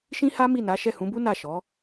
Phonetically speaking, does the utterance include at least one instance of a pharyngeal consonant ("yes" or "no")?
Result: no